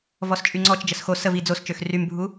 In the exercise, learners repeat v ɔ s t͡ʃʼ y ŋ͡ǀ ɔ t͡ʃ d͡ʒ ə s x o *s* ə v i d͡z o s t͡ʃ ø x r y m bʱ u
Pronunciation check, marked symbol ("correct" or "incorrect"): correct